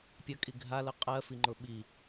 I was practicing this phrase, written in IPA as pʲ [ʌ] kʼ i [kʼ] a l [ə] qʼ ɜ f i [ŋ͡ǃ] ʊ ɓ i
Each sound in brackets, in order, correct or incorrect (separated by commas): correct, incorrect, correct, correct